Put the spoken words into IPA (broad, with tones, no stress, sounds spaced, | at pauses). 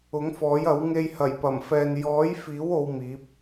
ʊ˨˥ ŋ f ɔː˨˥ j ɐ˨˥ w ŋ e˧ j h ɐ˨˩ j p ɐ˨˩ m f ɛː˨ n j ɔː˨˥ j f iː˨˥ w o˧ w m iː˨˥ p̚